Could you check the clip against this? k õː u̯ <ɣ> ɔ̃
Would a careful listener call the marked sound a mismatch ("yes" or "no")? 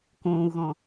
no